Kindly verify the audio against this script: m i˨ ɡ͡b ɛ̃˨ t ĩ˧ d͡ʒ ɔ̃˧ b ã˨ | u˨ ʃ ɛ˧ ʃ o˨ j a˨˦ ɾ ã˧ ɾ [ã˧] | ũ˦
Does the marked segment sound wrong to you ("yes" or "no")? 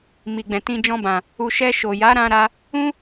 yes